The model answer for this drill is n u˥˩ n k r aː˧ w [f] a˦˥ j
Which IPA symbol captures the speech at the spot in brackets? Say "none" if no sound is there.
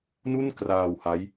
h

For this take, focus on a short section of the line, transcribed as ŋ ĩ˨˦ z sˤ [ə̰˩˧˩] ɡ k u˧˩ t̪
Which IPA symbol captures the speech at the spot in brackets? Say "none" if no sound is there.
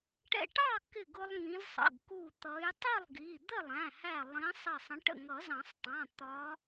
ə̰˩˧˩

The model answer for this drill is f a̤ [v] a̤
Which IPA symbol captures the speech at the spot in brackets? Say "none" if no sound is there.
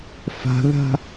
ð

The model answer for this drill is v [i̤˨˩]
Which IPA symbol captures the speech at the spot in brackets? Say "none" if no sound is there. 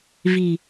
i̤˨˩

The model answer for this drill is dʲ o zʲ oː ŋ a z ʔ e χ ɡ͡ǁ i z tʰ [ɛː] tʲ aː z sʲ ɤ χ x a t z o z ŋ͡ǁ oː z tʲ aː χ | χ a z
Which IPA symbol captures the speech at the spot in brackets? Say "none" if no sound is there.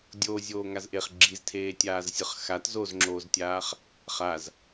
eː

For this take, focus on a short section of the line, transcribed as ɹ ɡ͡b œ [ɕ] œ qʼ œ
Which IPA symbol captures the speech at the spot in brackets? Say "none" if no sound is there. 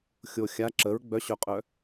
ɕ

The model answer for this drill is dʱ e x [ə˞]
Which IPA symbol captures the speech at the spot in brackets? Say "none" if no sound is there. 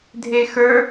ə˞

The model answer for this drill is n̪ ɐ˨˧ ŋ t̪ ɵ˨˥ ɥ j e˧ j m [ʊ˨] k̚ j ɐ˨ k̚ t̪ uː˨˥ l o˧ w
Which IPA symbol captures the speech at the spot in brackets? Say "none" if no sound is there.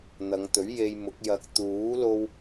ʊ˨˥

